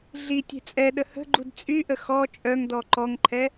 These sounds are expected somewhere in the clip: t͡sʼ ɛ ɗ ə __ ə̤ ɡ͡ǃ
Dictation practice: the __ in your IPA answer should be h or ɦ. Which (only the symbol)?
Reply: h